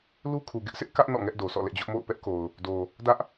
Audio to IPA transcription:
l u˦ kʰ u˨ ɡ ɪ˦ ʔ sʰ ɪ˦ ʔ k ä˦ ʔ n ɔ̰˦˨ ŋ ɛ˦ ʔ d o˨ s ɔ̰˦˨ l ɛ̰˦˨ d͡ʑ ʊ˦ ʔ m o̰˦˨ ʊ̯ p ɛ˦ ʔ k o˨ ʊ̯ | d o˨ | d ä˦ ʔ

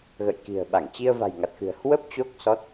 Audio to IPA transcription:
ɣ ə̰˧˨ j k i̤˨˩ ə̯ ɓ a˧˩ ŋ t͡ɕ i˧ ə̯ v a̤˨˩ j ŋ a˨˩ t̚ x ɨ̤˨˩ ə̯ h w ə˦˥ p̚ t͡ɕ o˦˥ k̚ s ɔ˦˥ t̚

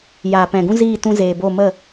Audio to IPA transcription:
j aː˨ p ɛ̃˨ ɡ ũ˦ z iː˦˨ t ũ˧ z eː˨ b o˦˨ m ə˦˨

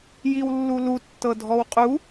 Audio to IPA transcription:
j i w lː u l u tː ɤ dʱ ɔ w qʼ u

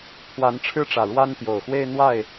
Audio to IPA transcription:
t̪ʰ w a˨˦ n ʈ͡ʂʰ ɻ̩˦ ʈ͡ʂ ä˨˩ ɻ w a˦ n t̪ j o˨˩ ʊ̯ x w e˦ ɪ̯ n̪ w a˥˨ ɪ̯

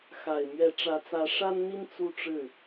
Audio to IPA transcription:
x a˨˩ ɪ̯ m ɥ ɛ˧˥ ʈ͡ʂ ä˧˥ t͡s ä˧˥ ʂ a˥ n n̪ i˥ n t͡s u˥˧ ʈ͡ʂ ɻ̩˥˩

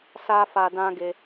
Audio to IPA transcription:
s a˦ f a˧ d ã˦ ɡ e˧

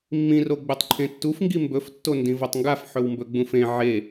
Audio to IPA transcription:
mː ĩ r o ɡ͡b ʉ tˤ ǃʰ ẽ tː u f ŋ ɡ i m b ɵ f tː o n d ĩ v o tˤ ŋ ɡ a f ħ ɵ w m b ɵ ɡ͡b ũ f ẽ ʕ e

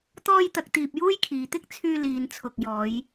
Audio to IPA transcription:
t̪ ɔː˥ j t̪ ɐ˧ k̚ t̪ iː˧ p̚ j uː˥ j kʰ iː˨˧ t̪ ɪ˥ k̚ t͡sʰ yː˧ l iː˨˧ n t͡sʰ ʊ˨ k̚ j ɔː˨˧ j

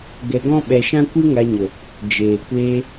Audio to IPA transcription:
ɡ ɛ˧ ɡ ɔ̃˦ ɓ ɛ˧ ʃ ã˦ kʷ ɨ˦ ŋ a˧ ɲ ə˨ | d͡ʒ eː˨ kʷ eː˧

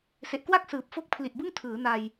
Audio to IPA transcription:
s e˨˩ ʔ k w a˥˩ k̚ s ɯː˨˩ p̚ f o˥˩ k̚ pʰ l i˨˩ ʔ b ɯ˥˩ ŋ tʰ ɯː˩˦ n a˧ j

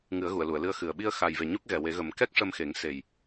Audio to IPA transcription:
ŋ ɨ˨˩˦ ə̯ ɣ u˨˩˨ ə̯ l u˨˩˨ ə̯ l ɨ˧ ə̯ x ɨ˨˩ ə̯ ɓ i˧ ə̯ x a˨˩ j v e˨˩ ɲ u˦˥ k̚ ɣ ɛ˨˩ w e˨˩˦ ɣ ə˨˩˦ m k ɛ˦˥ k̚ ʂ ə˧ m x e˨˩˦ ŋ s e˨˩ j

